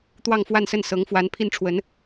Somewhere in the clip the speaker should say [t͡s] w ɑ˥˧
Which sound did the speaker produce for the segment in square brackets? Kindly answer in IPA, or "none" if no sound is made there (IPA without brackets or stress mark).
t̪